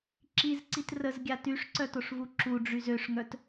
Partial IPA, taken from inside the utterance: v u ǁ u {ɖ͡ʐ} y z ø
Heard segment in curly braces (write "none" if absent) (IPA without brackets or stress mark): ɖ͡ʐ